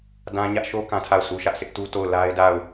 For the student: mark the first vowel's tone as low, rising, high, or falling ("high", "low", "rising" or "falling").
high